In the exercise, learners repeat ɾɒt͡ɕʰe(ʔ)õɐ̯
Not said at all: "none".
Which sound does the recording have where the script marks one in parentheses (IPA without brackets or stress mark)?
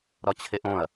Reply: ʔ